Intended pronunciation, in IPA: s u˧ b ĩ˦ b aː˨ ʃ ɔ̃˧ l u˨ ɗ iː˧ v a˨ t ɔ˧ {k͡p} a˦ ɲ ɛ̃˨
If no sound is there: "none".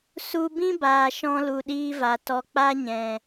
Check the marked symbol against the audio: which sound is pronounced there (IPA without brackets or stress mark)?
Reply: k͡p